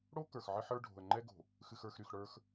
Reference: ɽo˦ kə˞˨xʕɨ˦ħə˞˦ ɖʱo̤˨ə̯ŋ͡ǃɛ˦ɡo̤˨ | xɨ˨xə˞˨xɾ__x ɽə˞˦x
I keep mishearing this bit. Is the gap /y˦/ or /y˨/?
y˨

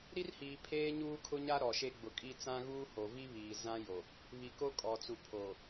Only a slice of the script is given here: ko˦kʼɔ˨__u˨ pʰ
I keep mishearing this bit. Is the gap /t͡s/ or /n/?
t͡s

